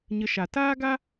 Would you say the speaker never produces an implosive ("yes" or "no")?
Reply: yes